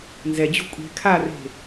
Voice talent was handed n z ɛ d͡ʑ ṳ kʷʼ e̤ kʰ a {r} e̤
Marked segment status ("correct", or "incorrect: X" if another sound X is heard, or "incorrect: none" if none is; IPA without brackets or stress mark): correct